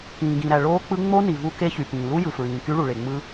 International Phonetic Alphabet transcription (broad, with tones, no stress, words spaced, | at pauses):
kĩː˩ɡĩ˩ɾæ˩ ɭoː˦˥k͡pɯ˦˥ ŋ͡mo˦˥ni˩ vu˦˥ke˦˥çy˩ pĩː˩lu˦˥jɯ˩ fɹĩː˩ky˦˥ɭu˩ ɭe˩ŋ͡mɯ˦˥